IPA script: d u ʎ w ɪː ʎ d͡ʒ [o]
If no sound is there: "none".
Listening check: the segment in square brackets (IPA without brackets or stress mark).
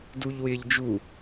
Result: u